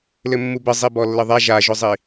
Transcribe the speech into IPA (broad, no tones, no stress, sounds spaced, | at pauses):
l ɘ mː u b ɘ zˤ i b ɔ lː ɘ ðˤ a ʒ a ʒ ʊ zˤ i